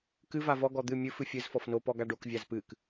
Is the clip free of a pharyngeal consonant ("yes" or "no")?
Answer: yes